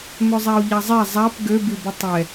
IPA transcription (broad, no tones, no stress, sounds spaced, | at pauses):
m ø zˤ a o̯ ʎ a zˤ ɛ zˤ a p ɡ ø b i b ə tˤ ɛ